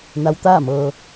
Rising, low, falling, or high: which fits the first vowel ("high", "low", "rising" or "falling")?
rising